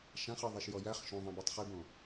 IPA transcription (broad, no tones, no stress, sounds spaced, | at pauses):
ʃ ã χ ɯ ðˤ e ʃ j ɔ j æ χ ʃ õ ðˤ ĩ b e tˤ χ i b õ